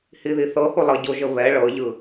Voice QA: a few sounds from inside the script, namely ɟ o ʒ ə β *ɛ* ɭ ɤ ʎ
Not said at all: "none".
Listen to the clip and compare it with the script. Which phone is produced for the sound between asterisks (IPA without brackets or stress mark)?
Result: ɛ